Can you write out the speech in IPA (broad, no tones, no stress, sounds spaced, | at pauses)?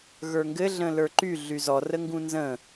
ɣ ə˞ ŋ ɡ ɘ ɮ ə̃ l ə˞ ǃ y ɮ y z ɔ r ə ŋ ɡ ũ n z ə̃